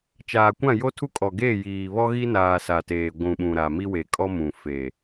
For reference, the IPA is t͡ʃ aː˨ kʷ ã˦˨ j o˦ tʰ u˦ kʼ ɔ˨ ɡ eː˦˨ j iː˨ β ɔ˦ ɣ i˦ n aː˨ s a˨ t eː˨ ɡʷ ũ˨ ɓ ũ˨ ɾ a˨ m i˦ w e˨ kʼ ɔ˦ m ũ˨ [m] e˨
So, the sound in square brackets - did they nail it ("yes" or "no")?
no